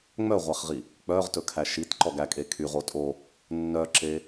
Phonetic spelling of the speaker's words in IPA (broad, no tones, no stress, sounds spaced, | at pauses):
ŋ͡m œ ʁʷ æ χ ʁ i | k͡p œ ʁ t ɵ kʰ æ ʃ i t ǃ ɔ ɡ æ kʼ e kʰ y ʁ o tʼ o | nː œ ǁ e